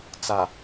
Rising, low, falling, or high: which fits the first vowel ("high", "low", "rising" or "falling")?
low